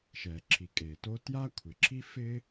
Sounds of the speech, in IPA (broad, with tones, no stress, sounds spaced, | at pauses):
ʃ ɛ˩ ǁʰ i˩ kʼ e˩ t o˥ t j a˥ kʷʰ ɪ˩ ǁʰ i˥ f ɪ˥